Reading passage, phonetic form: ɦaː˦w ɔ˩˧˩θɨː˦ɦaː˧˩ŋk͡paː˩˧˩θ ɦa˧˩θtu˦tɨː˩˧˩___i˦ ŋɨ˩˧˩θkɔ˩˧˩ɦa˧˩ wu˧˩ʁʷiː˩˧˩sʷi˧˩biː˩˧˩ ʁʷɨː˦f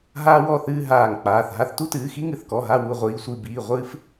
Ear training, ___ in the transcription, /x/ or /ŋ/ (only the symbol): x